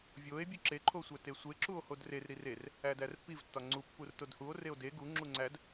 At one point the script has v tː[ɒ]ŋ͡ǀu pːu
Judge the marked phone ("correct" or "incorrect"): correct